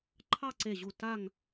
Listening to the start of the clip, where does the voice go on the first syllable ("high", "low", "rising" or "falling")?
falling